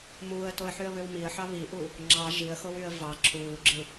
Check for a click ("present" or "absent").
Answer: present